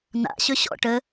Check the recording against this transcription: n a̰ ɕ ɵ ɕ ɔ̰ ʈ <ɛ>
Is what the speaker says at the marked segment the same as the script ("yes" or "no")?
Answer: no